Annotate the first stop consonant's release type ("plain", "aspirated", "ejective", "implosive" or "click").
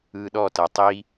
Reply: implosive